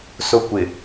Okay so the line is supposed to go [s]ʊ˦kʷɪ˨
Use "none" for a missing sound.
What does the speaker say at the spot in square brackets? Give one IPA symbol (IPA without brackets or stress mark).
s